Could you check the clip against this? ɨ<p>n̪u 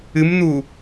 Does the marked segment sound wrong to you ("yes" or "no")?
yes